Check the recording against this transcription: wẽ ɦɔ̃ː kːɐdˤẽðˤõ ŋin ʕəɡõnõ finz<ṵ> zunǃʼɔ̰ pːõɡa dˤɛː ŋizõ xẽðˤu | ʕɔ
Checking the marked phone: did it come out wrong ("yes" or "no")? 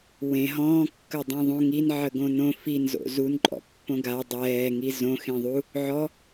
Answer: yes